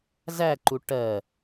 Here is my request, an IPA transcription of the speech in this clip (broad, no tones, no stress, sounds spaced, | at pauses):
z æ ǃ u ʈ ɜ